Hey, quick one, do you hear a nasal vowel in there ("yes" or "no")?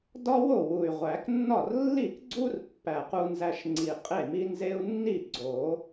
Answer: no